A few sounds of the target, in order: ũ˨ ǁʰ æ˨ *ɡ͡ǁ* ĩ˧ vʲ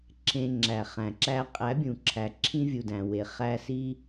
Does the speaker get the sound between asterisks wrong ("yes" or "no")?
yes